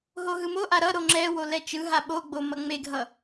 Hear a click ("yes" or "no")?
yes